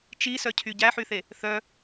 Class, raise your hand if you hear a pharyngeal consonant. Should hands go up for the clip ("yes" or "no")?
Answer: yes